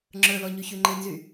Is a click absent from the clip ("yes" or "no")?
no